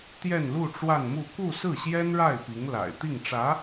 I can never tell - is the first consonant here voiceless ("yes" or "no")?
yes